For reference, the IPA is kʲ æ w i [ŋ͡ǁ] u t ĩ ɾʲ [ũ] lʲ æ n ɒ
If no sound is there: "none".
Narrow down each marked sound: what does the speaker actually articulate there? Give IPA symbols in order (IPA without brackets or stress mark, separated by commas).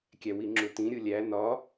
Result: ŋ͡ǁ, u